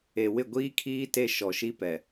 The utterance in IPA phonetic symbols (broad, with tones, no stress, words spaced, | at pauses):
e˨ wɪ˦˨ɡʷiː˦kʰiː˦ te˦ʃɔ˨ ʃi˦pɛ˨